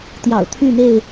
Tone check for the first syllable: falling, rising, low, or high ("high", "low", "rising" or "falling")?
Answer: low